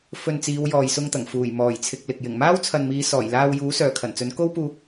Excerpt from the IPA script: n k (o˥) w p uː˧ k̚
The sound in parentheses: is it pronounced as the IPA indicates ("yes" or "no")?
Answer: yes